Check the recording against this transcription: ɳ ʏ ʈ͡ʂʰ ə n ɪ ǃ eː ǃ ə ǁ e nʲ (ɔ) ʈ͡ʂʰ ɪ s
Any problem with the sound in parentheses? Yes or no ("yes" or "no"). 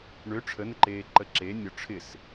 no